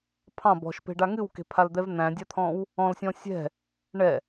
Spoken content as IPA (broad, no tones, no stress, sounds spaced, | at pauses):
pʰ ɑ̃ b ɔ̤ ʃ p e̤ ɖ a ŋ ɨ w k e̤ pʰ a l d̪ ɛ v n̪ æ̃ dʲ a t̪ʰ ɔ̃ w | ɔ̃ l sʲ ɔ̃ sʲ ɛ̤ | ɳ ɛ